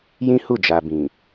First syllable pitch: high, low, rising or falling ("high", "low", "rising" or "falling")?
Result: high